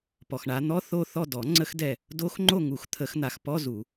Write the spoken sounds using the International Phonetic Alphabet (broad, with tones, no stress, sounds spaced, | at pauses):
p ɔ˨ x ɳ a˨˦ n̪ ɔ˧˥˧ θ o˦˨ θ ɔ˦˨ d ɔ˨˩˦ ŋ͡ǀ ə˦˥ x d ɛ˦˨ | d o˦˥ x ŋ͡ǃ o˦˨ ŋ u˨˩˦ x t̪ʰ ə˨˩˦ x n̪ a˨˩˦ x p ɔ˧˥˧ z u˨˩˦